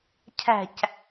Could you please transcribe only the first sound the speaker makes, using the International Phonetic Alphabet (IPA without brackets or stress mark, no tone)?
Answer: cʰ